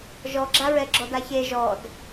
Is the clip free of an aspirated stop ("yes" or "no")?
yes